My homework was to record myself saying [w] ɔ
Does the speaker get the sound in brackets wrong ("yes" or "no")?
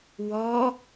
no